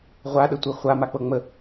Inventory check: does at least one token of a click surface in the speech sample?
no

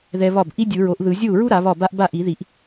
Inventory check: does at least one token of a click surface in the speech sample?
no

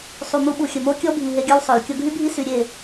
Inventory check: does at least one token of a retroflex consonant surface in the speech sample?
no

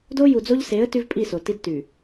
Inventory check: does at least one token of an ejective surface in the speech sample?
yes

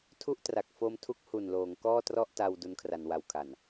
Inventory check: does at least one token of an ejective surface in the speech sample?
no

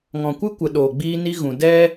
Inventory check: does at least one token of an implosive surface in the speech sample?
yes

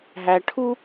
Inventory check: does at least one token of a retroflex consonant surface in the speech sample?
yes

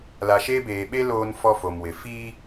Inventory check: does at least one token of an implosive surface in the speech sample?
yes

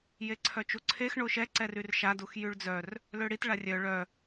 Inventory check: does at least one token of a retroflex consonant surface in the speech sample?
yes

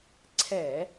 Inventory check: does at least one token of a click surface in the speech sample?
yes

